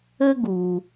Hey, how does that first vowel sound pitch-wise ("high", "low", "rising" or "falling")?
high